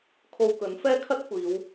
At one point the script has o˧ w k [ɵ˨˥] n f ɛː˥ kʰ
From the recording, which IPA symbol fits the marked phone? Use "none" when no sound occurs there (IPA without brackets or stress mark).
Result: ɵ˨˥